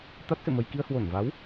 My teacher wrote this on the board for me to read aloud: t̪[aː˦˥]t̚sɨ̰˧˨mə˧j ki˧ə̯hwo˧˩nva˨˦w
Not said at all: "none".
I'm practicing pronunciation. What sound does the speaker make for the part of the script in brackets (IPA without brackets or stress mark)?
a˦˥